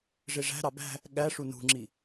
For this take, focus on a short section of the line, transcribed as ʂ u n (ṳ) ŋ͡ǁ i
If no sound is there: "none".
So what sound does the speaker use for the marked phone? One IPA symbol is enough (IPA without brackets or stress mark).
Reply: ṳ